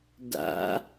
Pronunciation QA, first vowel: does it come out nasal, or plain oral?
oral